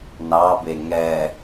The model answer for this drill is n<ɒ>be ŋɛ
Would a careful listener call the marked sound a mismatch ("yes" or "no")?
yes